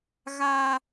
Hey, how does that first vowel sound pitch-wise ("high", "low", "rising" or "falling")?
high